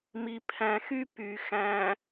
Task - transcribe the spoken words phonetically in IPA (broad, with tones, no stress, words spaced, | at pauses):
mi˨pʰæ̃˨xy˦ py˨ xæ̃˨